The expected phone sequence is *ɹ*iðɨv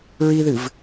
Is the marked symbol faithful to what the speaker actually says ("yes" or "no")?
yes